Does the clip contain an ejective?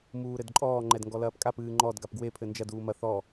yes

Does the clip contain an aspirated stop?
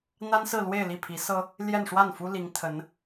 yes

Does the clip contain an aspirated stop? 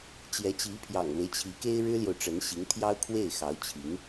yes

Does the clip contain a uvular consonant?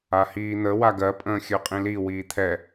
yes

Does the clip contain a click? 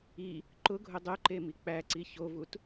yes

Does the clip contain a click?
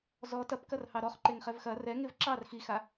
yes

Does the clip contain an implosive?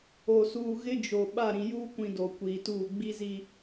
yes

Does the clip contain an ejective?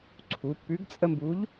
yes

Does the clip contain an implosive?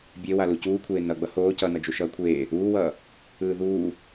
no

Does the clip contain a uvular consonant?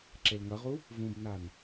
yes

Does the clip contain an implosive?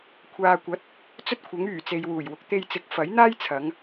no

